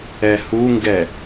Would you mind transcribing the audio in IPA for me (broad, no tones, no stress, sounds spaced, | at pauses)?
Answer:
ɛ h u ŋ ɡ ɛ